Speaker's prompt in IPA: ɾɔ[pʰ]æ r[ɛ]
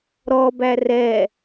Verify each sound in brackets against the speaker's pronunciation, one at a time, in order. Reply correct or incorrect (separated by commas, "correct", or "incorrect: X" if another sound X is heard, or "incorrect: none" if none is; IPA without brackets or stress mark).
incorrect: b, correct